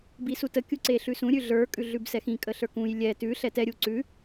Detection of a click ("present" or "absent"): present